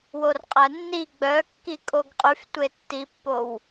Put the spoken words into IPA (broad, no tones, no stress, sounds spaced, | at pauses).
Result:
w o r qʼ æ nː i ɡ͡b œ kː i kʼ o ɡ qʼ y f tʷ e tː i pː o w